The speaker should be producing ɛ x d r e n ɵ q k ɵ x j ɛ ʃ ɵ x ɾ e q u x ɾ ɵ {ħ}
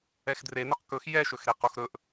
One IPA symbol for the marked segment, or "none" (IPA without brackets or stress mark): ʔ